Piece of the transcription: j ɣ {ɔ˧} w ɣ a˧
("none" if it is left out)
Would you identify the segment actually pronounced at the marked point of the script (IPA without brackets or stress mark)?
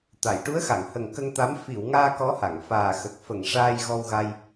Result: ɔ˧